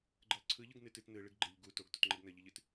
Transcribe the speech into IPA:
ɡ͡ǃ ɯ lˠ ǀʰ ɯ ʎ ɯ ɡ n ɨ t ɨ t n ɯ ɭ ɨ ɡ ɡ͡ǃ ɨ ʎ ɡ u t o ɡ t o t ŋ͡ǃ ɨ ɡ n ə ʎ ɨ ʎ ɨ t

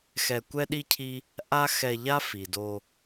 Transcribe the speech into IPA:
x ɛ˧ kʷ ɛ˦ ɗ i˦ cʰ i˦ | ʔ a˦ x ɛ˧ ʎ a˦ f i˨ d o˧

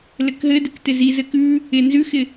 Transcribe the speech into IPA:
l ɘ k ɦ ɘ d ɪ k t ɪ z i z ɘ k ʉ | ɪ n z ʉ x ɪ

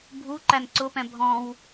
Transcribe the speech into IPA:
bʱ u ǃ æ n ǀ ʊ p ɛ̃ bʱ ɔ̃ w

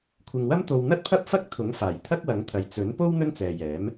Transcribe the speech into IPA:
kʷʰ ɪ˨ ŋ w ɐ˥ m t̪ o˧ w n̪ ɐ˥ t̚ pʰ ɐ˥ p̚ f ɐ˥ k̚ t̪ʰ ʊ˨˥ ŋ f aː˨˩ j t̪ʰ ɐ˥ k̚ w ɐ˨˥ ŋ t̪ʰ ɐ˨ j t͡s ɵ˨˥ n p o˥ w n̪ ɵ˥ n t͡s ɛː˨ j ɛː˨˥ m

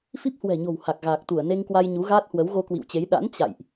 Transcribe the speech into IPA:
f i˦˥ p̚ h w ɛ̤˨˩ ɲ o̤˨˩ w h a˨˩ k̚ ɣ aː˨˩ k̚ t̪ u˧˩ ə̯ n e˧ ŋ k w a˧ j ɲ u˨˦ ɣ aː˦˥ t̚ h w ə˨˦ w ɣ o˧ k w ḭ˧˨ w t͡ɕ e˨˦ j ɗ a̰˧˥ n t͡ɕ a̰˧˨ j ʔ

